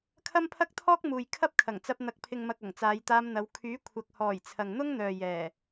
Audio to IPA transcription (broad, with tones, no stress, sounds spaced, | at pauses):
kʰ ɐ˥ m pʰ ɐ˥ k̚ t̪ʰ ɔː˥ k̚ m uː˨ j kʰ ɐ˥ p̚ kʰ ɐ˨˩ ŋ t͡s ɐ˧ p̚ n̪ ɐ˨ k̚ pʰ ɪ˨ ŋ m ɐ˨ k̚ ɐ˨˩ ŋ t͡s aː˨˧ j t̪ aː˧ m n̪ ɐ˨˧ w kʰ yː˨˥ kʷʰ ɐ˨ k̚ h ɔː˨˩ j t͡sʰ ɐ˨ ŋ n̪ ʊ˥ ŋ n̪ œː˨ j ɛː˨˩